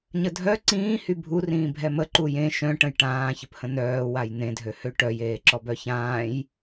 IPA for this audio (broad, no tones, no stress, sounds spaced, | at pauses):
ɲ ə dʱ œ ǀ ĩː h y bʱ u r ĩː bʱ ɛ m ə ǃ u j ẽ ʃ œ̃ ʈ ə̃ j ʈ ãː ç ə p h ə̃ n œː w a j n̪ ẽ dʱ ø h ø ʈ œ j eː ǁ ɔ b œ ç ãː j